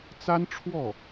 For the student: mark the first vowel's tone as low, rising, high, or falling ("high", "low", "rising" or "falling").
high